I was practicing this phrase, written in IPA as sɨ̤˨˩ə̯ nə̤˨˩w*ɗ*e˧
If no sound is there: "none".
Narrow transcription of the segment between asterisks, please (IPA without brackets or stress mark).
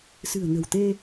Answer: t̪